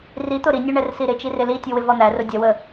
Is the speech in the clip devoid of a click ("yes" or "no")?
yes